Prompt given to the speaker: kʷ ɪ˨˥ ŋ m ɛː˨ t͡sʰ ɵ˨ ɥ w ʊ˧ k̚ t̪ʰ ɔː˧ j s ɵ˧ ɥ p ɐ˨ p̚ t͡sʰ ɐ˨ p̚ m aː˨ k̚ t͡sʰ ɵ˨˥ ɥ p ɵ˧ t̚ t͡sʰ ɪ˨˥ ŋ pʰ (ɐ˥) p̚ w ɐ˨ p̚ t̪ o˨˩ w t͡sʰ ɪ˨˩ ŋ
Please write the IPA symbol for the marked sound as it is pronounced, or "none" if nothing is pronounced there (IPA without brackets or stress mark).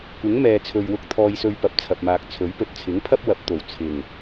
ɐ˥